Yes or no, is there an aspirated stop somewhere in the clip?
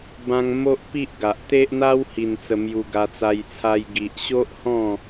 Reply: yes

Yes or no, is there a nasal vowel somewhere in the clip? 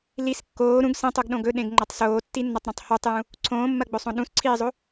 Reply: yes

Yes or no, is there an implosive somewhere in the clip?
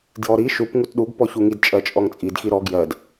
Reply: yes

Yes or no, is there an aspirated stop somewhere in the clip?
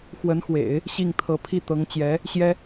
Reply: yes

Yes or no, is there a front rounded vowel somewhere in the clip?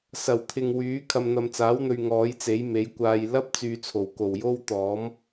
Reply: yes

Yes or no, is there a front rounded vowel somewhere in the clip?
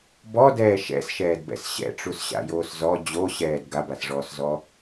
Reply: no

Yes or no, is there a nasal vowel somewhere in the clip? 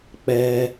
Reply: no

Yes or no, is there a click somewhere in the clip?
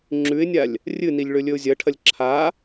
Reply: yes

